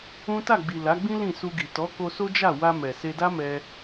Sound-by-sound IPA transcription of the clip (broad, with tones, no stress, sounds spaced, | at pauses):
ũ˦ t a˦˨ ɡ͡b i˨ l a˨˦ ɡ͡b ĩ˦ l ĩ˦˨ s u˧ ɡ i˨ t ɔ˨˦ k o˧ s o˦ d͡ʒ a˦˨ w a˧ m ɛ˨ s e˧ d a˦ m ɛ˧